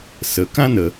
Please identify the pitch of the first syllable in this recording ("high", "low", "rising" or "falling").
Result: low